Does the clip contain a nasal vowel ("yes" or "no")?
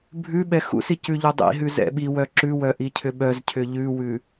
no